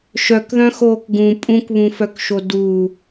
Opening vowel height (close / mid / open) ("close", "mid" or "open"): mid